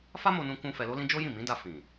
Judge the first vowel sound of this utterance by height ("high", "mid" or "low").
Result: low